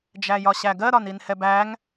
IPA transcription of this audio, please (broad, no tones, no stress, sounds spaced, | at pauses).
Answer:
d͡ʒ æ j ɒ ɕ æ ɡ ɜ ɾ ɒ n i n h ɛ b æ ŋ